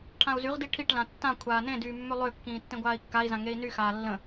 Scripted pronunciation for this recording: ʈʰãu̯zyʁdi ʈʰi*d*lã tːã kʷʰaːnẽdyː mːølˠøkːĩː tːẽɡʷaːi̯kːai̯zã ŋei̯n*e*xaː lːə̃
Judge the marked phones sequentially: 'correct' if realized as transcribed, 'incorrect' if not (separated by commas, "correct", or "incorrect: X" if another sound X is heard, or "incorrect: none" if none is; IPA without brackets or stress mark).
incorrect: ʈ, incorrect: y